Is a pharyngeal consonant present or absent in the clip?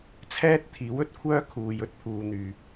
absent